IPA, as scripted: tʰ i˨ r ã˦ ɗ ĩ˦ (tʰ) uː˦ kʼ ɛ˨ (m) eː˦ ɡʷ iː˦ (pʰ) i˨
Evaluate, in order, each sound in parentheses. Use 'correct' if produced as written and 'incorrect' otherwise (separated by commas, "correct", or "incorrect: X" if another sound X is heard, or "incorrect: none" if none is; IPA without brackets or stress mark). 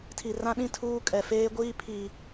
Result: correct, incorrect: f, correct